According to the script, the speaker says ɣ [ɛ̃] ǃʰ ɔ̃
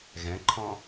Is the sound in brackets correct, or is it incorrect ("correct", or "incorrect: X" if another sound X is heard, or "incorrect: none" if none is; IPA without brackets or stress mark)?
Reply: correct